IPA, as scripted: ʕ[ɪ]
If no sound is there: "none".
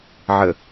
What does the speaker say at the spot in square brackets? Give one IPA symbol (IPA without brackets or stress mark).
ə